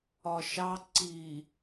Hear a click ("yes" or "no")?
yes